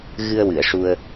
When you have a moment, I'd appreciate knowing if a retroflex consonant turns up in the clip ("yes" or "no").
yes